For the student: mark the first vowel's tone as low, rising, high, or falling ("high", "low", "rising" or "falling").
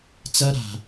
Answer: high